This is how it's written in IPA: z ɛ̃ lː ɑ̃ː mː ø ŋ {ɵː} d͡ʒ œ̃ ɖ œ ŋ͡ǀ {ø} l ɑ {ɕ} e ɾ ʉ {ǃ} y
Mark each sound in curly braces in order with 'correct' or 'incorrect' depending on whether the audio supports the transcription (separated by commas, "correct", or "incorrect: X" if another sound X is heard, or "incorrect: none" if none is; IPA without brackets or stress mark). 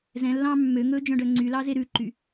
correct, incorrect: y, incorrect: z, correct